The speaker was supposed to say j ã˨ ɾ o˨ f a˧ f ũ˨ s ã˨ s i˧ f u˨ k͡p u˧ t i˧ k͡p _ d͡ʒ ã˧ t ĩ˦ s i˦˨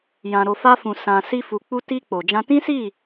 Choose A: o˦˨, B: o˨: B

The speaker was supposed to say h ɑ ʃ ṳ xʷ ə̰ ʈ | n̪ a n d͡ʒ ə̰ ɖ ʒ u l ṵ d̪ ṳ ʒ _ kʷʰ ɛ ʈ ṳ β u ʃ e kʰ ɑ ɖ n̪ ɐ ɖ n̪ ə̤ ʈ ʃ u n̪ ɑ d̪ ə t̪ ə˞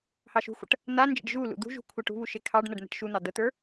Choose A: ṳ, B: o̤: A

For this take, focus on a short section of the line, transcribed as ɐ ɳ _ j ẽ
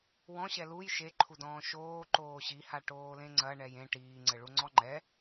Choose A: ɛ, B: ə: A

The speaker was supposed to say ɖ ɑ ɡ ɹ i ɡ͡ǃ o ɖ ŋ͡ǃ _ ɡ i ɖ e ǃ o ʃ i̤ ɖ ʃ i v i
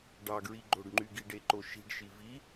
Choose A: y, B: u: A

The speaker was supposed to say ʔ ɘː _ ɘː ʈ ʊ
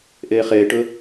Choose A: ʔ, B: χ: B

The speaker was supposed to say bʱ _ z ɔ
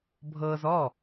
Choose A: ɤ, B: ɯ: A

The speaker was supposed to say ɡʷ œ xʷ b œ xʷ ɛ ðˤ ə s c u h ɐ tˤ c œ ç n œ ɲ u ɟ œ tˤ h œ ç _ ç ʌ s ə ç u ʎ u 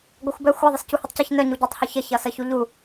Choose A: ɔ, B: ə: B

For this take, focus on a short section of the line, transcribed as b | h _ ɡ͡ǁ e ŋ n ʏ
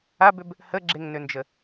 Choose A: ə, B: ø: A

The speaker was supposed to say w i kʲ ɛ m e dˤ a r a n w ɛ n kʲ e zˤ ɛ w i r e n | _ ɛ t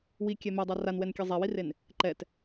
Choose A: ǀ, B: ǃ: B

